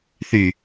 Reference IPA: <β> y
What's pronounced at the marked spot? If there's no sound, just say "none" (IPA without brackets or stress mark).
θ